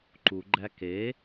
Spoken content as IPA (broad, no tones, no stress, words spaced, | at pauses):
ǃuɡ͡ǃæ ke